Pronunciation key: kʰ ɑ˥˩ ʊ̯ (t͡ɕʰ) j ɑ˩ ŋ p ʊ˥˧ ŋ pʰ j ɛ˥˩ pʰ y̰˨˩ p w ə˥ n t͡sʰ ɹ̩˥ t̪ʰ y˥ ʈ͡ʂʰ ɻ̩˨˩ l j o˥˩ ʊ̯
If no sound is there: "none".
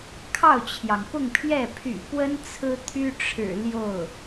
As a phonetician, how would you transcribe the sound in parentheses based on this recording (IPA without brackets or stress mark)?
t͡ɕʰ